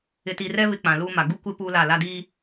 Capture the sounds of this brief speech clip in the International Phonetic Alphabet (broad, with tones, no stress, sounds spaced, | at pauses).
ɪ˨ t i˨ r ɛ˦ β ɪ˦ k͡p ã˨ l uː˦ m a˨ ɡ u˦ kʷ ɪ˦ p uː˦ l a˦˨ l a˦ d iː˦